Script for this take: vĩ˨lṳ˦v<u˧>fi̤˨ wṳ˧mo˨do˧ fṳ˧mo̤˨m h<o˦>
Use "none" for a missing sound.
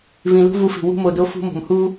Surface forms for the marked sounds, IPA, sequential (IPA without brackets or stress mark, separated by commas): u˧, u˦